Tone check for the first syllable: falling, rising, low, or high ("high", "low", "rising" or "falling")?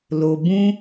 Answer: low